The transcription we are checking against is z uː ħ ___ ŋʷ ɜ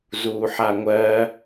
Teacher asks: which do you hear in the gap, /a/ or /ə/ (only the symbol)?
a